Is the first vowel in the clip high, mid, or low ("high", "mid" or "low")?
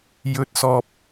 mid